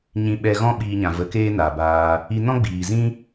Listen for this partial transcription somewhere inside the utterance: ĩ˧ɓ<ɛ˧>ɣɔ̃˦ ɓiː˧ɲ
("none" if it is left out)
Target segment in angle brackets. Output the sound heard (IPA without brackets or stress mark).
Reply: ɛ˧